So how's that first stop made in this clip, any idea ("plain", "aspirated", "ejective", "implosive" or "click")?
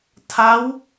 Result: aspirated